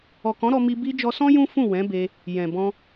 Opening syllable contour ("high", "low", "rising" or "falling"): low